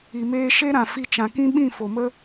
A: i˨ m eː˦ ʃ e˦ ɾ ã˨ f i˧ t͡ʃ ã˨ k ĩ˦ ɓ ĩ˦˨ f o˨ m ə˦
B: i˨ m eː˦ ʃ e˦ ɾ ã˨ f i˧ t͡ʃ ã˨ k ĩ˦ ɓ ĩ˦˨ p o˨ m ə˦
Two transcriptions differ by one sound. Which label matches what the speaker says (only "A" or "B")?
A